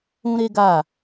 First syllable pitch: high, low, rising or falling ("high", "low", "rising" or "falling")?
high